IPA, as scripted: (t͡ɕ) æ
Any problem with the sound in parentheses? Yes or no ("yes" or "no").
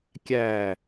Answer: yes